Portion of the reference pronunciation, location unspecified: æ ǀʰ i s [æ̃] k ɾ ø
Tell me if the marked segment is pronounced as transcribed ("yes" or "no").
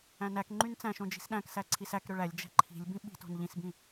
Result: no